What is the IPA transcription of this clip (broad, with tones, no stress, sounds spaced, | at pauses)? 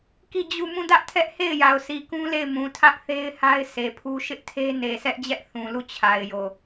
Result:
k i˦˨ d͡ʑ u˦˨ m ũ˦˨ d ä˦ ʔ tʰ ɛ˦ ʔ h e˦˨ ɪ̯ j a˨ ʊ̯ s i˨ k ũ˦ l e˦˨ ɪ̯ m ũ˨ tʰ ä˦ ʔ θ e˦ ɪ̯ h a˦ ɪ̯ sʰ e˨ pʰ u˦ ʃ ɪ˦ ʔ tʰ e˦ n e˨ sʰ ɛ˦ ʔ d͡ʑ ɛ˦ ʔ θ ũ˨ l u˦˨ t͡ɕʰ a˨ ɪ̯ j o˨